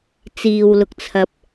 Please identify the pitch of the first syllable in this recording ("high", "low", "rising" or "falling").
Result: low